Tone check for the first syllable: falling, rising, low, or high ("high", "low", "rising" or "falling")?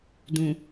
low